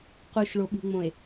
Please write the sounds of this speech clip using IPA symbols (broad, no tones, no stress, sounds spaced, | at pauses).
q u ʃ ɭ o ɓ ṳ ŋ͡m õ e̯